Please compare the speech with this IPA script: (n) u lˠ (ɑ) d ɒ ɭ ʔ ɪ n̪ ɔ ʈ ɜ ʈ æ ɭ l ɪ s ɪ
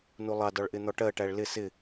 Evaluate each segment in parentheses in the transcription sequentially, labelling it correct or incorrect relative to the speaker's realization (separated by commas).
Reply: correct, correct